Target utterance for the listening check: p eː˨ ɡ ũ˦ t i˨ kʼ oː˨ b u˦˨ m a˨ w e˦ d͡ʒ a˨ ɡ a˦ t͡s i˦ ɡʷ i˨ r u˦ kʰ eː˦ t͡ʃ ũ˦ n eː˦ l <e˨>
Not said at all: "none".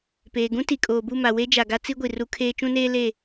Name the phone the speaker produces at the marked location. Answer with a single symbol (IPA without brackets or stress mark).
e˦˨